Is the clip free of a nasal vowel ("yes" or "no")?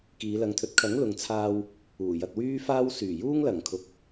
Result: yes